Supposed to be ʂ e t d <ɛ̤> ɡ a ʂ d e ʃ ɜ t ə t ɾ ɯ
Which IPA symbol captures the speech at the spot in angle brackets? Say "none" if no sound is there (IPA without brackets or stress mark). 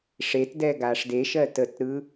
ɛ